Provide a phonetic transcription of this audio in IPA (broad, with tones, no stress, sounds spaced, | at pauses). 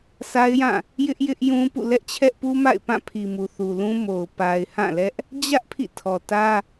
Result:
s a˦ ɪ̯ j ã˦˨ | j ɪ˦ ʔ j ɪ˦ ʔ j ũ˦ p ṵ˦˨ l ɛ˦ ʔ t͡ɕʰ ɛ˦ ʔ p u˦ m a̰˦˨ ɪ̯ p ã˦˨ pʰ i˨ m u˨ θ u˨ l ũ˦ m o˨ ʊ̯ p a˨ ɪ̯ h ã˦˨ l ɛ˦ ʔ | d͡ʑ ä˦ ʔ pʰ ḭ˦˨ tʰ ɔ˨ t ä˦